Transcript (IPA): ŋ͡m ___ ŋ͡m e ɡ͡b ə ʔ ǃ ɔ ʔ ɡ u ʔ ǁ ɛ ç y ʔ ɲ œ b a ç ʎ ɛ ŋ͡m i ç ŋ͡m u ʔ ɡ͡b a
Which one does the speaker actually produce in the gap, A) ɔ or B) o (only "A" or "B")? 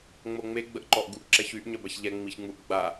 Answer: B